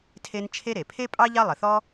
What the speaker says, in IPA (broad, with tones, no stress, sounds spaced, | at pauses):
tʰ e˥ n t͡ʃʰ e˥ ɾ e˩ pʰ e˥ pʼ ɑ˥ ʎ ɑ˥ lˠ ə˩ θ ɔ˥